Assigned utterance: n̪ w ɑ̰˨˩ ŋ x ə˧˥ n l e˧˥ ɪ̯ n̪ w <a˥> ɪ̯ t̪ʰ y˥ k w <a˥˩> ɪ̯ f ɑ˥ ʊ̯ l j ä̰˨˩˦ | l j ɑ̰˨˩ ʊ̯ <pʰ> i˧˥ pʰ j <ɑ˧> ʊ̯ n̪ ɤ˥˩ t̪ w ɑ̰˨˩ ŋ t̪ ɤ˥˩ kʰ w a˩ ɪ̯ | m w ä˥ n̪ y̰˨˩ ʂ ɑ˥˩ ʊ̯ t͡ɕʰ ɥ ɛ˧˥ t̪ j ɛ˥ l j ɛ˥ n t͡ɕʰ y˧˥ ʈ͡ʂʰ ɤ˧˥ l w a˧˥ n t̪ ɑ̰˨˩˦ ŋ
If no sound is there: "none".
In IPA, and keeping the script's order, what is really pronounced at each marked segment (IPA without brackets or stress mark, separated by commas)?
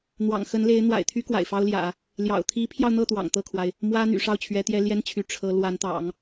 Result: a̰˨˩, a̰˨˩, t̪ʰ, ɑ˧